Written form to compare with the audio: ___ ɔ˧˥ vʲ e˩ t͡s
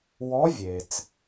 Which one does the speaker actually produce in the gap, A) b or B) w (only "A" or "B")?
B